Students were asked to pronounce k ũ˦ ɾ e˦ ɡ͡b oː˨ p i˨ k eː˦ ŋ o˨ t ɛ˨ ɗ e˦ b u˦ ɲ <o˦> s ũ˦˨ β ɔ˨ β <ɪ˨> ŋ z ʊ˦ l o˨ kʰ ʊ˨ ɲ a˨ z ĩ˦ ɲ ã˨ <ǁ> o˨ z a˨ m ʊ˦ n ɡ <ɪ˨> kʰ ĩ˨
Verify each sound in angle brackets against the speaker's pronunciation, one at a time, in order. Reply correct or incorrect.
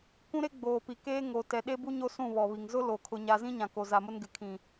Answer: correct, incorrect: i˨, incorrect: k, correct

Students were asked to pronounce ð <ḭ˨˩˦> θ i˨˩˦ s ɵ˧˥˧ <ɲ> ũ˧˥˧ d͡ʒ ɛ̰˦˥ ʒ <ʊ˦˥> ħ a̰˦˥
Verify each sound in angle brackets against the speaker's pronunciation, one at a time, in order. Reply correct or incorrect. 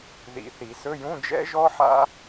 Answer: correct, incorrect: j, incorrect: ɔ˦˥

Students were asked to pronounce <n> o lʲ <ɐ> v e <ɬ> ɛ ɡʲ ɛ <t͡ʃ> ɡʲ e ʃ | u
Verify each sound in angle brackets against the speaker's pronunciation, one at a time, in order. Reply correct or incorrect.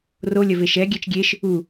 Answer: incorrect: r, correct, incorrect: ʃ, correct

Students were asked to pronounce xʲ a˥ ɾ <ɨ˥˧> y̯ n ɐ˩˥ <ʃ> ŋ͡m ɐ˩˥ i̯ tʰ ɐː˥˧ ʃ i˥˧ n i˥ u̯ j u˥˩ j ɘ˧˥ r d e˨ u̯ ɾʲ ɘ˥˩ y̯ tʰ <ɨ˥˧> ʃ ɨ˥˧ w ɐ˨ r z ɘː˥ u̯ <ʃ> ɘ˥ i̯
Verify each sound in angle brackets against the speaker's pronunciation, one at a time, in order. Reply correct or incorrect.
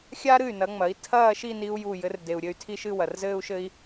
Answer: incorrect: ɨ˥˩, incorrect: none, incorrect: i˥˧, correct

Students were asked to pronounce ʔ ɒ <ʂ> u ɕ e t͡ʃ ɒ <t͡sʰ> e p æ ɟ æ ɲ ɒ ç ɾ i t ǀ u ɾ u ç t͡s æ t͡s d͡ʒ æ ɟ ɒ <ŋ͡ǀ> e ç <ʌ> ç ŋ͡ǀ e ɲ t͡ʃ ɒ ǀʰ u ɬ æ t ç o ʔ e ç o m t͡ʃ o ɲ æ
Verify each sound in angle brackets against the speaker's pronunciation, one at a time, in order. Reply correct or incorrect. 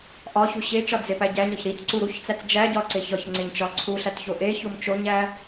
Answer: incorrect: ç, incorrect: d͡z, incorrect: ǀ, incorrect: ɒ

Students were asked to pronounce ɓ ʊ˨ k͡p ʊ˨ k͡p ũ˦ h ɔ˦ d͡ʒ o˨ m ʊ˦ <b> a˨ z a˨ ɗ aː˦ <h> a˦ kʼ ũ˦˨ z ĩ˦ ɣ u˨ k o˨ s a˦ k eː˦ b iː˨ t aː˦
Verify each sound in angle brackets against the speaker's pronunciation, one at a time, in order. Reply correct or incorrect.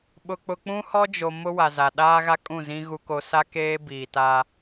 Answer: incorrect: w, incorrect: ɣ

